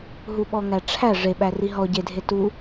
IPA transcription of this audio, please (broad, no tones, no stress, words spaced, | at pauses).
ɦuɓɔŋæʈ͡ʂʰæ ʐeɓæ riɦɔ ɟedʱe tu